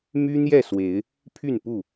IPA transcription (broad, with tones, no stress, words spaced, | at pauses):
my˦n̪jɛ˥˨swe˨˦ɪ̯ | pʰy˥˨npu˥˨